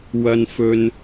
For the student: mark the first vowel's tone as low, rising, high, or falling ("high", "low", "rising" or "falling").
high